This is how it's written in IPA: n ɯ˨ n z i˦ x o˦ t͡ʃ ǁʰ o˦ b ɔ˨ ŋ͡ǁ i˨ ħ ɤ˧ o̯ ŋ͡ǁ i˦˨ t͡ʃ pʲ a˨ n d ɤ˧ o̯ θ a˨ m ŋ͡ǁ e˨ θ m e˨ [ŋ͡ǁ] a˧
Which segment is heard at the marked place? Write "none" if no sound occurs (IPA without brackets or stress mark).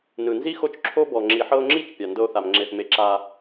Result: ǁ